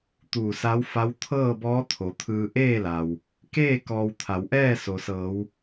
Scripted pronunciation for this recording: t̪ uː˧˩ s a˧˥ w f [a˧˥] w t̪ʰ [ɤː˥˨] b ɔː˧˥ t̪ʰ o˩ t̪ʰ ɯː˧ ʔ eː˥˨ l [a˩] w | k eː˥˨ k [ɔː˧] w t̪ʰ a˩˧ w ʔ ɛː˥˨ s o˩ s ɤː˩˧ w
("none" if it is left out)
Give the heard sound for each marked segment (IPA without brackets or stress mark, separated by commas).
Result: a˧˥, ɤː˥˨, a˩, ɔː˧